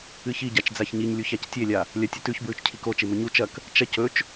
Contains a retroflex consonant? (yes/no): no